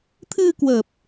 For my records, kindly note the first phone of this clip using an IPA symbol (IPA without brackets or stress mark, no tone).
t̪ʰ